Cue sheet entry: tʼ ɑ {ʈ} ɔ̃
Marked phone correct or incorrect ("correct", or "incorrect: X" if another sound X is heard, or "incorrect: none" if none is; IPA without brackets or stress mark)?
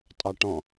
correct